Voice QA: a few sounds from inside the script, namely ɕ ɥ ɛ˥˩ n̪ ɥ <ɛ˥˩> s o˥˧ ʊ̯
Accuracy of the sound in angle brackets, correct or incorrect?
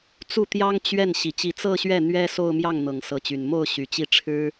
incorrect